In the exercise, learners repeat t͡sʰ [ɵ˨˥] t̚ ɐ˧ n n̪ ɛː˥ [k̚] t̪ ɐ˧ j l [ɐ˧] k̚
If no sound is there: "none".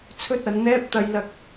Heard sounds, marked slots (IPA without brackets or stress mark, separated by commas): ɵ˥, p̚, ɐ˧